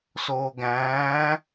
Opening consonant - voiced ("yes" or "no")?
no